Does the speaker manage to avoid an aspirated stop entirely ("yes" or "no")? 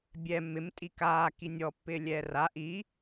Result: yes